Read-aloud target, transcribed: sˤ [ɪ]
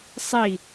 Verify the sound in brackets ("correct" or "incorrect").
incorrect